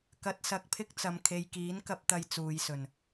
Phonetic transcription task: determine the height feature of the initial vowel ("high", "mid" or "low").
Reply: low